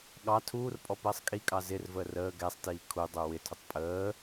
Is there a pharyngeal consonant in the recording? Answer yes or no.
no